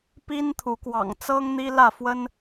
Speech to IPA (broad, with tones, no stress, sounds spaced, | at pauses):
p i˦ n t̪ʰ u˨˦ k w ɑ̰˨˩ ŋ t͡s ɤ˦ ŋ n̪ i˦ l ä˥˨ f w ə˦ n